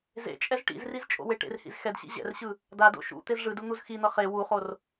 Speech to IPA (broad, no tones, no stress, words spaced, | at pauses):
zḛt͡ʃʼɛz ʈḭzriz t͡ʃʼo̰weʈḛrhḭz xɛdɕḭ ʑɛ̰rɕɯ | dado̰ ʃṵ t̪ezʐɯdu n̪uzxin̪ʌ χe wuχor